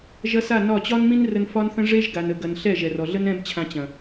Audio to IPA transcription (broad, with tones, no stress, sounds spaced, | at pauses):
ʒ ɐ˦ s a˦˨ n ɒ˦˨ t͡ɕ ɒ˦ n m ĩ˦ n r ə˧ n f ɒ˦ n θ ə̃˦ ʐ e˦ ʒ ɡ a˨ n ə˨ ɡ ɐ˨ n ɬ ɛ˦˨ ʒ ɛ˨ r ɔ˨ ɮ ə˦ n ɛ̃˦ b t͡ɕʰ ã˧ t͡ɕ ɐ̃˨